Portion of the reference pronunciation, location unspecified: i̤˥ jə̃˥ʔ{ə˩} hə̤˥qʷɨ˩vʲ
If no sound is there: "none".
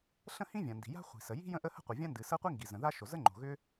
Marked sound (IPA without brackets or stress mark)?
ə˥